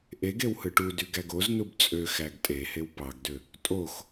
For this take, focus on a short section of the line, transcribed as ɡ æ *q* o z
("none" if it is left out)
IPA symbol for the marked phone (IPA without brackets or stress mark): ɡ